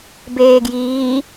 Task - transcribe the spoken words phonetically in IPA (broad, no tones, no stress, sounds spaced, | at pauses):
b eː ɡ j iː